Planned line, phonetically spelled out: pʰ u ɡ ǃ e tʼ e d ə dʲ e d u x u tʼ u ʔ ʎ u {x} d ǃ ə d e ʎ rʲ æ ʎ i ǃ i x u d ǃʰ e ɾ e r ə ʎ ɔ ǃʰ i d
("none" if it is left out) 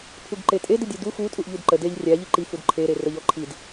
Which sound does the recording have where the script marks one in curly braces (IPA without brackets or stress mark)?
none